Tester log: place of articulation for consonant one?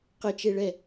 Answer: uvular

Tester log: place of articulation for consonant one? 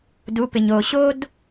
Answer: alveolar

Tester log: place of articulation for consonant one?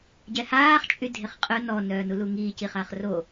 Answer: palatal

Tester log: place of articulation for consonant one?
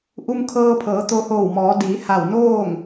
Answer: glottal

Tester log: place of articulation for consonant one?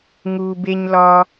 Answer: velar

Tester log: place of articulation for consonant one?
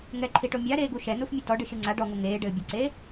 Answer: velar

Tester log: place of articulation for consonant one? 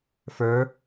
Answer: labial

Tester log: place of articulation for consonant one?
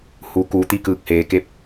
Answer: glottal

